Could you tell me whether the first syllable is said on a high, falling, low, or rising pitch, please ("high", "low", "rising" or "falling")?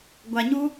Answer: low